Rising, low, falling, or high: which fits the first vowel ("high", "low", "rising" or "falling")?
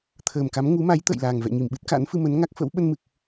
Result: low